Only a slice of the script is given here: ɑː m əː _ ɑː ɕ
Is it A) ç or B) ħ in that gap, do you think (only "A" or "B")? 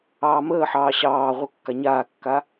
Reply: B